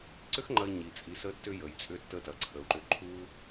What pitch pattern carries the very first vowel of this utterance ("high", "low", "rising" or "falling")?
high